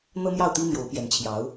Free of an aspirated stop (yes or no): no